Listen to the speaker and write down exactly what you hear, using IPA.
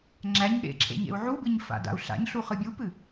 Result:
ŋ͡ǁ æ ɲ ɠ ḛ ǁʰ ḛ ɲ ḛ u̯ ʕ u b ɨ ɲ f a̰ d a̰ u̯ ɬ a̰ ɲ ɬ u χ ɨ bʲ u p ɨ

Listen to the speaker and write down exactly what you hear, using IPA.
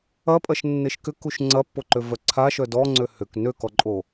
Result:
ɐ pʼ ɐ ʃ nː e ʃ k ʏ k u ʃ ŋ͡ǀ ɐ pː o ǃ ø v œ ǀʰ a ʃ œ d ɔ ŋ͡ǀ ø h ʏ k n ø k ɔ ǃʼ o

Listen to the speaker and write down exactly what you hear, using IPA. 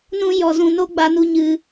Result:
n ũ˦ j ɔ˧ z ũ˧ n o˦ ɡ͡b a˧ n u˧ ɲ ɨ˧

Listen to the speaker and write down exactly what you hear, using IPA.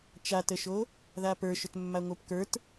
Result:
t͡ʃ a t ə ʃ o | ð a p ə˞ ʃ ʏ t mː a ŋʷ ə˞ p k ə˞ t

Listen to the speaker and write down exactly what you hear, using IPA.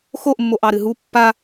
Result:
x o ʔ mː o ʔ ɑ ɾ ɨ ɦ u pː a

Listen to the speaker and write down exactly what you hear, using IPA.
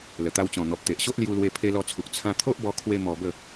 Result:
l ə˨˩ t̪ a˧ w t͡ɕ ɔ̃˨˩ n̪ ɔ˨ p̚ t̪ e˨ ʔ ɕ o˦ ʔ l j u˦ l w e˦ pʰ e˧ l ɔ˧ t͡sʰ u˨ k̚ t͡sʰ ã˧ t̪ʰ o˦ ʔ b ɔ˧ kʰ w e˦ m ɔ˧ b ə˥˧

